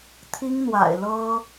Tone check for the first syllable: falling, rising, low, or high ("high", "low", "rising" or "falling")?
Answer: high